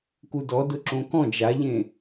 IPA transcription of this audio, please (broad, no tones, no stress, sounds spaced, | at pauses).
k u d ɔ d ʊ ǁ õ k ɔ̃ d͡ʒ a ʎ ẽ